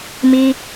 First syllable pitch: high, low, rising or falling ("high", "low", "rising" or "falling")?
high